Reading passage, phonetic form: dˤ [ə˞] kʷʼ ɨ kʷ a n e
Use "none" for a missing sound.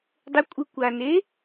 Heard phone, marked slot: ə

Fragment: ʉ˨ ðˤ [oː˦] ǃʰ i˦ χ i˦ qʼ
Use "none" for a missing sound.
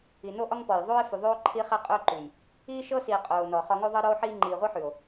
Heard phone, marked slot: oː˦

